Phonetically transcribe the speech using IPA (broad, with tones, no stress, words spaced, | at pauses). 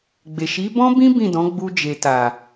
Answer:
ɡ͡be˨ʃi˨˦bɔ̃˦bĩ˦ bĩ˦˨dɔ̃˨˦ɡ͡bu˧ d͡ʒe˨ta˨